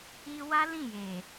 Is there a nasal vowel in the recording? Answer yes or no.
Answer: yes